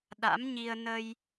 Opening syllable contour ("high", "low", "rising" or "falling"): rising